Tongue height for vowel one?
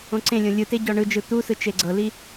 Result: mid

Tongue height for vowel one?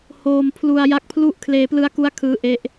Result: mid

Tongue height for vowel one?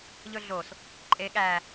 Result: mid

